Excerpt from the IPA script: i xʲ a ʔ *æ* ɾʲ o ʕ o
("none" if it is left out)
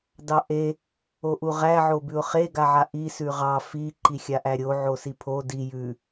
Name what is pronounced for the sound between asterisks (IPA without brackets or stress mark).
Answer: æ